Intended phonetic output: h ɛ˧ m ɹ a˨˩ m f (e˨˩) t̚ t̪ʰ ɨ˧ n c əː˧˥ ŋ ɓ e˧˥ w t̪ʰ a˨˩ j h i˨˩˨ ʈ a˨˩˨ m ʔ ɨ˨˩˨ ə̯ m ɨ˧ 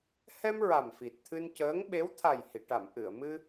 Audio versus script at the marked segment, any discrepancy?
yes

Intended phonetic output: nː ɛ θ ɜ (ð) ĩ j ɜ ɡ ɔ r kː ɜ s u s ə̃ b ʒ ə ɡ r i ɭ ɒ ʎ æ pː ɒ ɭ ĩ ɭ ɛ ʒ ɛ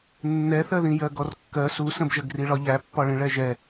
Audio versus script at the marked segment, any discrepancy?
no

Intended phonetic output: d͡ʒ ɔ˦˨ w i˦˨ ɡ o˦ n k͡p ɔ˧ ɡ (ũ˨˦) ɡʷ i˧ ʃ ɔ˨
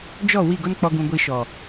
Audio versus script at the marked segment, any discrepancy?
yes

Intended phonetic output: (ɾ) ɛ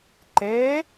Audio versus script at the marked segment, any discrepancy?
yes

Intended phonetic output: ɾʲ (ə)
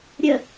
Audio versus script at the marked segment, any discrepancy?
no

